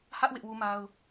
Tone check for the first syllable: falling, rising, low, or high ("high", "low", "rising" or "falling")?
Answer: high